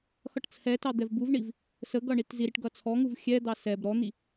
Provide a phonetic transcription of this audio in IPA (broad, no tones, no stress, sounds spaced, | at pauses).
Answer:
x ʌ ʈ t͡sʰ ɛ t ɑ d̪ ɛ v b u v ɳ i v | s ə ɡ ʌ ɳ i t z i ɾ i ʈ ɡ ʌ t͡sʰ ɔ ŋ u v xʲ ɛ d̪ ɑ s ɛ b ɾ ɔ n̪ i